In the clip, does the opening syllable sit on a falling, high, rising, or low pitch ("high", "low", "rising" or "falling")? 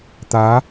rising